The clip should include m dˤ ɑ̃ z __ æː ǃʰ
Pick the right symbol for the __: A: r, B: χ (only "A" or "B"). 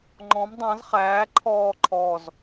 B